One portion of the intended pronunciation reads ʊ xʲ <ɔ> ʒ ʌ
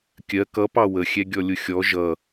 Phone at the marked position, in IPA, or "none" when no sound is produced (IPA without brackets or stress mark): ɔ